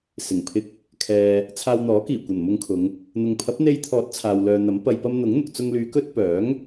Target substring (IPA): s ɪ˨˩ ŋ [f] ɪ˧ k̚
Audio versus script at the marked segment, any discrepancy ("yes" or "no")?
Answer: yes